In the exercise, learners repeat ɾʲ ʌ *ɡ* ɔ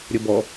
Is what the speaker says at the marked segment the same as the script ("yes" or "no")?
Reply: no